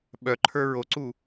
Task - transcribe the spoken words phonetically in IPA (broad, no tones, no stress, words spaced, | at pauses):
ɓœǃʰə˞ ɹoǀu